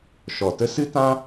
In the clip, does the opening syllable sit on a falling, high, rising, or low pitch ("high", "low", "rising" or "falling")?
low